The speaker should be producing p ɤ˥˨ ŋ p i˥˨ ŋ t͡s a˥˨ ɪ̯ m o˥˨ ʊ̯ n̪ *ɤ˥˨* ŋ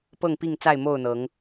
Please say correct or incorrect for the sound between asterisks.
incorrect